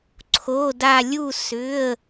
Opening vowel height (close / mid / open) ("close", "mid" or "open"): mid